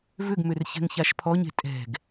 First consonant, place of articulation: labial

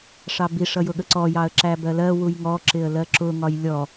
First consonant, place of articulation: retroflex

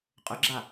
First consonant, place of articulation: uvular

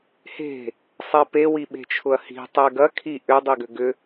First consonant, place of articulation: glottal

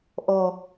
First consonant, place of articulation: glottal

